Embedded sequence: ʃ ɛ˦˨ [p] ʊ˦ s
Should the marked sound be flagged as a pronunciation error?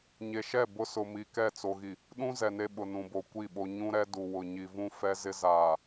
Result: yes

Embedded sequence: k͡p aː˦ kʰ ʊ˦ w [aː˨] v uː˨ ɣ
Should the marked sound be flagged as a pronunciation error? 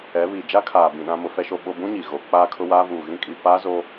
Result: yes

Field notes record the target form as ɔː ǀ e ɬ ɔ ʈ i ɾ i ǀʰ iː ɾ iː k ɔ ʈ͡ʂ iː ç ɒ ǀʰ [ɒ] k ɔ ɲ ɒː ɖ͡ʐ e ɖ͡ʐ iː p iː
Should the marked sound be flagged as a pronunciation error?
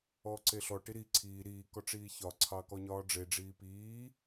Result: yes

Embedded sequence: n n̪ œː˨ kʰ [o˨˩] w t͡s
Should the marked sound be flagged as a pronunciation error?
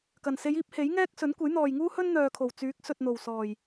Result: no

